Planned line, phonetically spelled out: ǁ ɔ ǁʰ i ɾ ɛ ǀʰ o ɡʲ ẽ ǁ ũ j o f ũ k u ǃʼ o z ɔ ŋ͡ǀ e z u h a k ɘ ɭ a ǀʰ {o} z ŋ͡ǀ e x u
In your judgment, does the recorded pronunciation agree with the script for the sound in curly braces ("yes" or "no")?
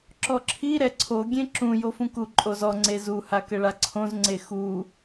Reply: no